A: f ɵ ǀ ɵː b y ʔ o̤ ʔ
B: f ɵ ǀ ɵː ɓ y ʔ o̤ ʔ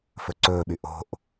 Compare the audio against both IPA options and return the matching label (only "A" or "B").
B